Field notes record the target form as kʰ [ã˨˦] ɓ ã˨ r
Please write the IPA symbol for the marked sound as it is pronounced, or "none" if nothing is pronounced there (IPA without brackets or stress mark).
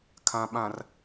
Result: ã˨